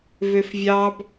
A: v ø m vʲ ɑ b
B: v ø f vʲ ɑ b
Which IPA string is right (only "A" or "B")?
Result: B